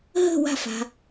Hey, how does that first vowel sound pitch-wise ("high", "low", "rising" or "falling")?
falling